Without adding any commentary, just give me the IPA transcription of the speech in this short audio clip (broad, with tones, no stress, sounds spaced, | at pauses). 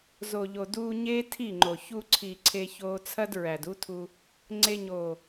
z o˨ ʎ o˨ d uː˧ ɲ eː˦ tʰ i˦˨ ŋ͡ǃ o˨ ç u˧ ǀʰ i˨ ǀʰ e˧ ç oː˧ t͡sʰ ɐ˦ d ɹ æ˨ d u˦ tʰ u˧ | ŋ͡ǀ e˧ ɲ oː˨